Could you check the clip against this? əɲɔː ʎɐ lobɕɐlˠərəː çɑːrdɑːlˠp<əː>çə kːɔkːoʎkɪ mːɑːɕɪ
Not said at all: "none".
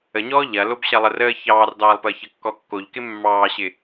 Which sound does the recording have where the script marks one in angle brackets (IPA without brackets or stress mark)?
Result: əː